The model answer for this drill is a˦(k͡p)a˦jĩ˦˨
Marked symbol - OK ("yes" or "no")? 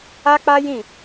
yes